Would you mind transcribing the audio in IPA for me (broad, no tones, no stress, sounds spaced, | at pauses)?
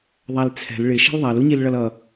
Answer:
ðˤ æ l t͡sʰ ɛ̤ l ɭ ɪ ʃ ɛ̤ l ðˤ æ l u ɲ i l ɭ ʌ l ʌ